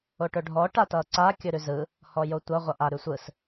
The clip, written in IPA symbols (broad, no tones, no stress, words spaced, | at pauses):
oʈɵɖʱɔ ʈatʌːǀa kʲɵɾʉzɯ | hɔjotʷʌ ʁʷʌʔa ɾʉsʷɯs